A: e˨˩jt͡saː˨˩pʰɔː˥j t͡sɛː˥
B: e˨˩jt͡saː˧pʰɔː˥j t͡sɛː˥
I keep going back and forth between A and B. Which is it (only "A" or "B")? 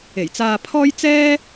B